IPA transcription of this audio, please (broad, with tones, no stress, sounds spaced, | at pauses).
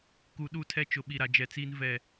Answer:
k u˨ ɗ u˦˨ tʰ ɛ˦ t͡ʃ ʊ˨ ɓ i˨ ɾ a˨ d͡ʒ ɛ˨ t͡s iː˦ n v ɛ˦˨